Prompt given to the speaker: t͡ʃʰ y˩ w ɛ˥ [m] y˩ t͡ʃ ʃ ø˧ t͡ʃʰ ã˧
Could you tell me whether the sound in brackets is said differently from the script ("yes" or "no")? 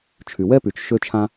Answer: yes